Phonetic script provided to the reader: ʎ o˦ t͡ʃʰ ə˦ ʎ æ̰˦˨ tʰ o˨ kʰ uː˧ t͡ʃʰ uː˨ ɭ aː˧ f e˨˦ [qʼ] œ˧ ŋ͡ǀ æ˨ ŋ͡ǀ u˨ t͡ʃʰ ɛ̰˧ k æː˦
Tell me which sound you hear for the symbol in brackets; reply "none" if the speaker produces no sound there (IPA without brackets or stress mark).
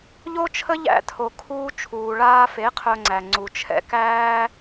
qʰ